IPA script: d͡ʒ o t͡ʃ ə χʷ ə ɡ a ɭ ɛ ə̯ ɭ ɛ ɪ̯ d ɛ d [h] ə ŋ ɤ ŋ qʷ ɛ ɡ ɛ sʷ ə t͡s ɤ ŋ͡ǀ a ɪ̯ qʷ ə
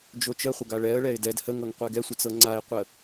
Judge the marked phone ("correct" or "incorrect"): correct